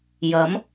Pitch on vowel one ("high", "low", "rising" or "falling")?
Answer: rising